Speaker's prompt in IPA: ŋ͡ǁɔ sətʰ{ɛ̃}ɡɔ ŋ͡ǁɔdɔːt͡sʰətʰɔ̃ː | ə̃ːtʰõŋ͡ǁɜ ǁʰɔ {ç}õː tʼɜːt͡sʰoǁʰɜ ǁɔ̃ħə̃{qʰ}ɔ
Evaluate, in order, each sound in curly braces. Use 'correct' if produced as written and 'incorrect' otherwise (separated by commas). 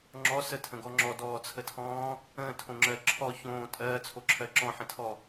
incorrect, correct, incorrect